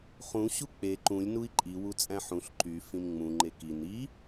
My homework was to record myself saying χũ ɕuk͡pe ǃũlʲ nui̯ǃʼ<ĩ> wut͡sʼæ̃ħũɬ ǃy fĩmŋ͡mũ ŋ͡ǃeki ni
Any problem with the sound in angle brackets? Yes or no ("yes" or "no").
yes